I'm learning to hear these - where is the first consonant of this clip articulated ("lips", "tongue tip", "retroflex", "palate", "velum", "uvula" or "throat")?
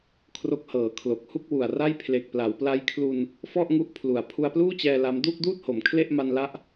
velum